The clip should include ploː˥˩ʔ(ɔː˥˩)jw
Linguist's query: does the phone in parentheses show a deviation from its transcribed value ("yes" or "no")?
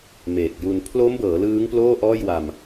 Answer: no